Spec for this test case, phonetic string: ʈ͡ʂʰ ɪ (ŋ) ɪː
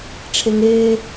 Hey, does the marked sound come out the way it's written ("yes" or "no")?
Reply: yes